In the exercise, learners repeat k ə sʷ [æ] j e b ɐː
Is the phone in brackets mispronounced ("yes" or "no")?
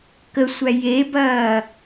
no